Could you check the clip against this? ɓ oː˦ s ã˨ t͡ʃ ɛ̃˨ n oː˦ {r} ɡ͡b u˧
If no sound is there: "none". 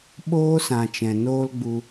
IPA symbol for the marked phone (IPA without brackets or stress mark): l